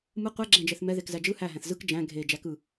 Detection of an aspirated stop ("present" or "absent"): absent